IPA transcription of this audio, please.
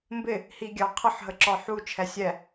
m b ɪ | h i ɡʲ ɑ qʰ ə ħ ɦ ə ǁ ɒ ħ u t͡ʃʰ ɛ sʲ ɛ

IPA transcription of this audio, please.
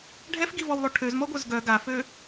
ɖʱ ɛ f ɡ i v ɔ w lˠ o ʈʰ ø z m ɔ ɡʷ œ z ɡ œ ɡ a f øː

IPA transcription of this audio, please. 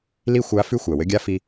l i˥ xʷ a˧˥ f ʉ˥ xʷ æ˩ w ɘ˧˥ ɡʲ a˥ f i˧

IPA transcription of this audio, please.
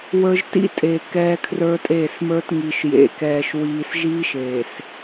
w ə˞˦ ʒ t ḭ˦ tʼ e˨ k ɛː˦ kʰ r ə˞˦ tʼ eː˦˨ s m ə˞˦ t ŋ i˨ ʃ j ḛ˨ k ɛː˨ ʃ w iː˨ s ʒ iː˦ ʃ eː˨ s

